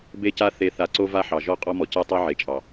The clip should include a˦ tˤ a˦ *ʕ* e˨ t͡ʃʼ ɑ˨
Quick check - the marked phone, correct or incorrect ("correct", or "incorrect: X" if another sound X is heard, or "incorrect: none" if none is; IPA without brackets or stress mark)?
correct